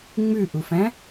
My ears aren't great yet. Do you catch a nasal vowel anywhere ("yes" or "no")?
yes